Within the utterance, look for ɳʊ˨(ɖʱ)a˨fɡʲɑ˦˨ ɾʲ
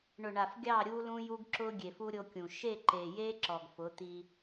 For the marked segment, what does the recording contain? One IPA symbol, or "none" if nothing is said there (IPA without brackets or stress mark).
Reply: ɳ